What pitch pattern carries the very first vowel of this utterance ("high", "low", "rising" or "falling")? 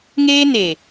high